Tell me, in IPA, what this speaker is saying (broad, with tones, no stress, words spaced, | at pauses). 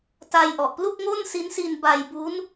ta˧jʔɔ˨˩ʔ plu˥˩k̚ŋo˥˩nsi˦˥nsi˧n ba˧jbu˦˥n